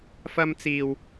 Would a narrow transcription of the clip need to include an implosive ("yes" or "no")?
no